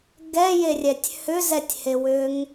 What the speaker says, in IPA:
ɡɛjerʲɛtʲ hʏzɛtʲhewʏŋ

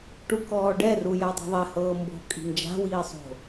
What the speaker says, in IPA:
ʈukɔːɖɛ rujadˤi̤ðˤɛ hɤːmbo̤ kʼi̤nd͡ʒa̤ wiːsˤo̤

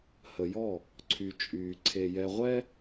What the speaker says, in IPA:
hə˨jɔ˦˨ | ǀʰy˨t͡ʃʼyː˨ ǀʰe˨jɛ˨ʁʷɛ˦

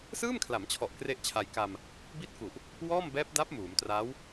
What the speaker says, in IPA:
sɯː˥˩mkʰla˩˦mt͡ɕʰɔ˨˩ʔ kre˥˩ʔt͡ɕʰa˧j ka˧m | bi˥˩t̚ku˨˩ʔ | wɔː˥˩mbɛː˦˥p̚da˦˥p̚ muː˩˦mtraː˦˥w

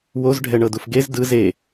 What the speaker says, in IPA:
woz ɖʱɛɳɤdufɡez dɯ ze

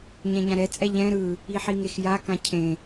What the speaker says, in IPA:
ɲɛ̃ɲãɾɛ t͡sʼɛʎɛ̃ ɾɯ | iħiŋexja kãcʰẽ

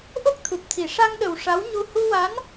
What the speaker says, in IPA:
ʔo˦˥k̚t̪ʰu˨˩p̚t̪ʰi˨˩˨ ʂa˧ŋɗə˨˩w ʂa˧˥wɲu˧ hu˧wa˧˥n

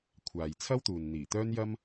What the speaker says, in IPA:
kʷʰaː˨jt͡sʰɐ˥wt̪uː˨n n̪iː˨˩t̪œː˥njɐ˥m

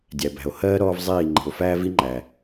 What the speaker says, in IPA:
dʲæ˨bæ̤˨o̯ hɜː˦ ɾɔː˦vzˤiː˦˨ ŋ͡ǃi̤˨o̯fæː˦vi˦ŋ͡ǃæ˨

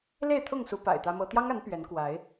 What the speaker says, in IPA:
le˥˨ɪ̯t̪ʰʊ˥˨ŋsu˨˦ pa̰˨˩ɪ̯t̪ä˦mɤ˦ t̪jɑ˦ŋa˨˦n pɥɛ˨˦n kwa˨˦ɪ̯

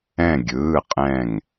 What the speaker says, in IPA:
ɛ̃˧˩ɡʲɯː˩˧˩qʼɛ̃˧˩ŋ

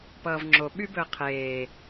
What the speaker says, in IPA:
pʌːvŋ͡ǁo ɓybɵə̯qʰeː

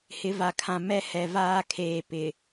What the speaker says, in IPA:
hɪ˨˦va˨kʰã˨ mɛ˦ hɛ˨vaː˦kʰeː˨ pɪ˨

